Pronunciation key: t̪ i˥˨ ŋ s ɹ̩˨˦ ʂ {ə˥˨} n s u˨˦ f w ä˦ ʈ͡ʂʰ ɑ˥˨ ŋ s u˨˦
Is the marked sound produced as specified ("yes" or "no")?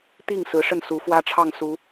yes